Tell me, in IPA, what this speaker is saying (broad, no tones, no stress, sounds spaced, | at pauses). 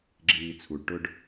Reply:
ɡ͡ǁ iː t͡sʰ u ɖ ʈ ʊ ɖ